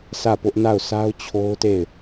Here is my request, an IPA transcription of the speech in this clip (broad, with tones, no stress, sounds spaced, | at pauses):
s ä˦˨ p ʊ˦ ʔ n a˦˨ ʊ̯ sʰ a˦ ʊ̯ t͡ɕʰ o˦ ʊ̯ t e˦˨ ɪ̯